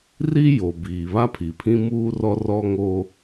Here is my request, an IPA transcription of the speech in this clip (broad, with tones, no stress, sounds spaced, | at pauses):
r i˦ j o˨ b iː˨ β a˦ pʰ i˨ pʰ ĩ˦ m uː˦ r ɔ˦ r ɔ˦ ŋ oː˦